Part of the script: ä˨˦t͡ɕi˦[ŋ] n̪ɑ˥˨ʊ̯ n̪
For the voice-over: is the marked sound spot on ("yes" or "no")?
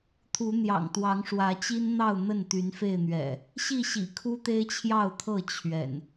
no